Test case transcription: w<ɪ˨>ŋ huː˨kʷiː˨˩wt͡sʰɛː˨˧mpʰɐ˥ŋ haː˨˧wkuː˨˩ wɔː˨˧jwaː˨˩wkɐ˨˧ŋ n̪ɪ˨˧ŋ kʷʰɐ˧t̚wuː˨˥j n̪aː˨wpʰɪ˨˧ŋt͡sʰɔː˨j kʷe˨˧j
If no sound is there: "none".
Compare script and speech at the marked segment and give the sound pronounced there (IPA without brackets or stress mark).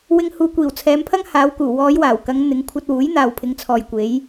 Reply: ɪ˥